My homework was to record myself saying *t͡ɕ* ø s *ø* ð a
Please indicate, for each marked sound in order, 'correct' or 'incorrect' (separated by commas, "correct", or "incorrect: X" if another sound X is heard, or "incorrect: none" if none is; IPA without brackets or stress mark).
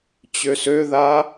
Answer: correct, correct